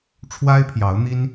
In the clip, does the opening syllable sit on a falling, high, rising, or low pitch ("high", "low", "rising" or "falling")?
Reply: high